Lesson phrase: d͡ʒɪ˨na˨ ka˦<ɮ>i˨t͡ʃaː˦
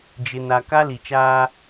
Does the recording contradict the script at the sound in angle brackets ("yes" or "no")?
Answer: yes